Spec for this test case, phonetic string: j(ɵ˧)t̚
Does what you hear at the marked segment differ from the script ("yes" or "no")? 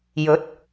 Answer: yes